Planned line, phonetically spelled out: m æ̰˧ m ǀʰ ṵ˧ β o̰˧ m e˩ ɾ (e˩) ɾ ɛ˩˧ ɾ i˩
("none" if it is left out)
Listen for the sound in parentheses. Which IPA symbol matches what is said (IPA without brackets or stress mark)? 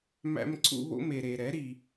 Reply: e˩